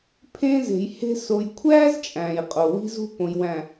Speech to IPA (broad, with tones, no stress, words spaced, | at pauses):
pʰẽ˦ze̤˨jhe̤˦ so˨jkʷʰæː˦z t͡ʃʼæ̃ː˨jqʼo˨wi̤˦zṳ˦ põ˨jwæ̃˨